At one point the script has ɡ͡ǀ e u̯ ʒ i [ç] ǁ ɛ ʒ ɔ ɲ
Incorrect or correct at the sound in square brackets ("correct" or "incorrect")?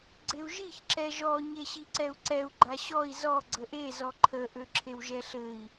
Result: correct